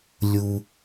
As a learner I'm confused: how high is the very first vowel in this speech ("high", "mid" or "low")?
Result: high